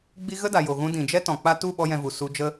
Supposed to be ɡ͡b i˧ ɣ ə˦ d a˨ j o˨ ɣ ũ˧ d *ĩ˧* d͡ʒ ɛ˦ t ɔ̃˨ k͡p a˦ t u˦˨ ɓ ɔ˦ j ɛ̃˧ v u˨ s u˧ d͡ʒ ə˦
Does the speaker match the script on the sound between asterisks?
no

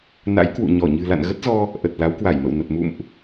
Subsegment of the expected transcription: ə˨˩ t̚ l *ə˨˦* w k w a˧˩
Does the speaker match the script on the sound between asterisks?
no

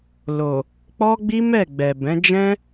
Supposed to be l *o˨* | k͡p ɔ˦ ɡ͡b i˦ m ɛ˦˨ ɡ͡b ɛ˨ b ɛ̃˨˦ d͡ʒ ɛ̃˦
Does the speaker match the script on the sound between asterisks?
yes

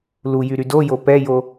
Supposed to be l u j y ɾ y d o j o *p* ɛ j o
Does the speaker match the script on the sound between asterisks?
yes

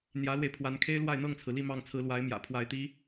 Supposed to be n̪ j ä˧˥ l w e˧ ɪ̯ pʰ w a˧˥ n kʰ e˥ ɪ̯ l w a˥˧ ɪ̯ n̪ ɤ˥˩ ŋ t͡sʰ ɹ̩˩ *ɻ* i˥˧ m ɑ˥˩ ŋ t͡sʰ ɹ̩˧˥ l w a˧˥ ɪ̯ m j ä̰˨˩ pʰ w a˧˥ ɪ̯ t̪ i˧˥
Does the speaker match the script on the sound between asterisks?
no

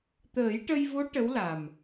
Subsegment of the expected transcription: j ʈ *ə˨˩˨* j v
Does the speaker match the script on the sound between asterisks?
no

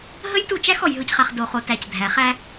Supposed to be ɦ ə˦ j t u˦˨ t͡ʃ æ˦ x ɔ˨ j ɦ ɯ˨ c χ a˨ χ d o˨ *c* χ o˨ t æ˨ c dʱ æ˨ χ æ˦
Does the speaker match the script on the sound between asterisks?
no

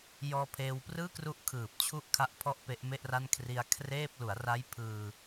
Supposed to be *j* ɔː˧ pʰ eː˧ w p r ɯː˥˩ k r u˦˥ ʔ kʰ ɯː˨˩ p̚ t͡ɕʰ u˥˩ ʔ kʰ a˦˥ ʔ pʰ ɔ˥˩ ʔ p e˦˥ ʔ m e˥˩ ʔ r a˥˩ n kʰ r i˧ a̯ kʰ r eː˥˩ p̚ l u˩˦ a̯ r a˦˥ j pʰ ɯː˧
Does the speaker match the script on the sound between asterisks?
yes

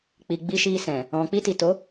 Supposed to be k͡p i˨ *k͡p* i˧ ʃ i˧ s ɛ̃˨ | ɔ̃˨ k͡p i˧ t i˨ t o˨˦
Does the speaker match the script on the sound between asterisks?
no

